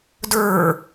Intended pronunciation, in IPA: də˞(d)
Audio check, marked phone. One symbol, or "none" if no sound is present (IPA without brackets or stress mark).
none